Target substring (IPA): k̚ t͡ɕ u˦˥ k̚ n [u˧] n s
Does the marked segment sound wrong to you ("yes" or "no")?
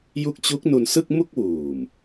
no